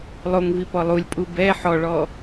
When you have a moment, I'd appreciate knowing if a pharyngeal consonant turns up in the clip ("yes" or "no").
yes